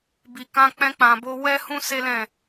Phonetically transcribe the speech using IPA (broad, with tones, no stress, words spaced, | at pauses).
bi˨kã˧ k͡pɛ̃˧k͡pã˨ bo˧wɛ˦hũ˦ se˦lɛ̃˦˨